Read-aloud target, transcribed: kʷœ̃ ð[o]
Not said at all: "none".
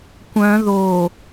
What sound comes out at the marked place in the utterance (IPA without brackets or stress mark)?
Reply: o